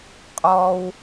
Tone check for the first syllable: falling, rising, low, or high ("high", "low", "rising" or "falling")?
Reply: high